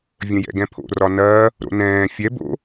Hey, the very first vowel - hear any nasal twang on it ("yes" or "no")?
yes